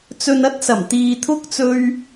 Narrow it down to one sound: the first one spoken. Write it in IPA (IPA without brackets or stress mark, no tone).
t͡s